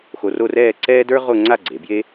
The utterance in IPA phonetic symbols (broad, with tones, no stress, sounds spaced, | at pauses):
x o˧ r o˥˧ r ɛː˥˧ ǀ ɛː˥ d ə˞˥ ʁ o˥˧ ŋ͡ǀ a˥˧ ɡ͡ǀ e˩˧ b j e˥